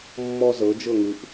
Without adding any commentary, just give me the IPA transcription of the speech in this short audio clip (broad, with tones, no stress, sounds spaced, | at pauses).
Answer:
mː ɔ˧ z ɤ˩˧ d͡ʒ ɤ˧˩ ŋ ɯ˩˧ ʔ